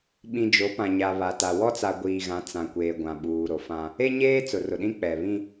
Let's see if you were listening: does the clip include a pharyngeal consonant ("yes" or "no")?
no